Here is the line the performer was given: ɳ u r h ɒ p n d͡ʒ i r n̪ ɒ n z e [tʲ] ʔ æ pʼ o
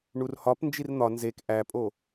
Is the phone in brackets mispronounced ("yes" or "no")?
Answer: yes